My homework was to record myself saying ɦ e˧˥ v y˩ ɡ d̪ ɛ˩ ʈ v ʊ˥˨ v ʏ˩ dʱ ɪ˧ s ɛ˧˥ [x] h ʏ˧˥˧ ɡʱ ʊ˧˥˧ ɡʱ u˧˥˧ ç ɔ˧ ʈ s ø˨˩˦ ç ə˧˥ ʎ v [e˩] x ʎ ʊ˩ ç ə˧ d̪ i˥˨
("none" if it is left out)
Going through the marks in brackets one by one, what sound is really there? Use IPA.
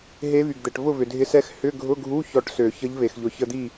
x, e˩

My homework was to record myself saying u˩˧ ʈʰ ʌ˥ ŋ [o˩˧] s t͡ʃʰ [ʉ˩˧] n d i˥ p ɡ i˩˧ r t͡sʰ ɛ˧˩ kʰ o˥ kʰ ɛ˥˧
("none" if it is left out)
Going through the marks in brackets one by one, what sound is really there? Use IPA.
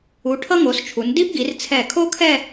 o˩˧, u˩˧

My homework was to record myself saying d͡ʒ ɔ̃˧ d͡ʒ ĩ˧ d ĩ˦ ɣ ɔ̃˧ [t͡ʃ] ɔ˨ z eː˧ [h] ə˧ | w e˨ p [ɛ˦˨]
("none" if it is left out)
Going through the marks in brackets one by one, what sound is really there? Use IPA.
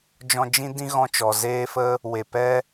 t͡ʃ, f, ɛ˦

